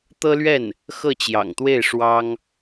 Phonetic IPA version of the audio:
t̪ ɤ˥ l ɥ ɛ˥˩ n | x ɤ˥˩ t͡ɕ j ɑ̰˨˩ ŋ t̪ w e˥˩ ɪ̯ ʂ w ɑ˥ ŋ

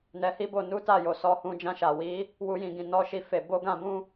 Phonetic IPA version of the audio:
n ɛ˧ h i˦ b o˧ n u˦ t a˦˨ j o˨ s ɔ˧ h ũ˧ d͡ʒ ã˧ ʃ a˨ w i˨˦ | w u˦ j ĩ˦˨ ɡ ĩ˧ n ɔ˦ ʃ i˦ f e˧ b o˦ ɡ ã˧ b ũ˦

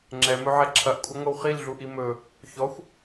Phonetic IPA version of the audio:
ŋ͡ǁ ɛ m ɵ ʕ ɛ ǁʰ ɐ ʔ kʷʼ ɐ ŋʷ ɐ w χ i l ɮ u ʔ i m ɵ | ç ɔ xʷ

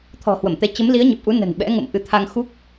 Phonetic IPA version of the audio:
t̪ʰ ɔ̤˨˩ h w ə˧˩ m t̪ ɛ˨˦ t͡ɕ ə˨˦ m l i˨˦ ə̯ ɲ e˨˩ p̚ ʔ u˨˦ n ə̤˨˩ n ɓ ɛ̰˧˥ ŋ ə̰˧˨ m ʔ ɨ˨˦ t̪ʰ a˧ ŋ x u˦˥ k̚

